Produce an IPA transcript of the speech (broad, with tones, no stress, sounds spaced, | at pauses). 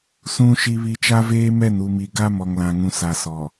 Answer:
s ũ˨ ʃ i˨ β i˨ t͡ʃ a˦ v eː˦ m ɛ˦˨ n u˨ m i˨ ɡ a˦ m ɔ˨ ŋ l ã˨ ŋ ũ˨ s a˨ s ɔ˨